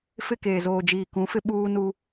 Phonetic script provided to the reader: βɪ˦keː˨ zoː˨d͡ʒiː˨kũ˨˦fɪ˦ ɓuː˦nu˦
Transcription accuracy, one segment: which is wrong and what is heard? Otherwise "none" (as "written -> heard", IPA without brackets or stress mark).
β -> f